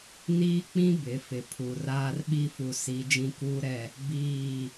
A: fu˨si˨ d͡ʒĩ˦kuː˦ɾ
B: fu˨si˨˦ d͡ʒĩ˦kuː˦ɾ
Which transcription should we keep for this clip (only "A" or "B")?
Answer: B